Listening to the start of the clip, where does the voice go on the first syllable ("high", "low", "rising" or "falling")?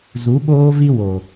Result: rising